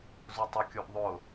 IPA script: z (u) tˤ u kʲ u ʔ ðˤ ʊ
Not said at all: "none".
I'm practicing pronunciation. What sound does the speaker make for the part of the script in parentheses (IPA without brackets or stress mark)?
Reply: u